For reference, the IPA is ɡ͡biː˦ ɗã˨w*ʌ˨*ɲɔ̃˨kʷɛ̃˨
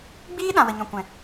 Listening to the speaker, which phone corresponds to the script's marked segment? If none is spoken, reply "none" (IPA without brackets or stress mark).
ə˨